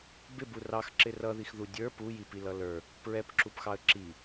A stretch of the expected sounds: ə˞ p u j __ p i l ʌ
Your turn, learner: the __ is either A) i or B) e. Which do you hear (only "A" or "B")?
A